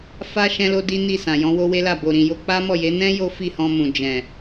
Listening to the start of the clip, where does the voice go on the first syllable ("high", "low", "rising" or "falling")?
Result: high